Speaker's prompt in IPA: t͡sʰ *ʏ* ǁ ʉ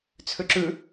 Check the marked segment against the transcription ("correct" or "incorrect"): correct